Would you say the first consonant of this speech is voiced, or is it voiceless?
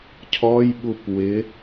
voiceless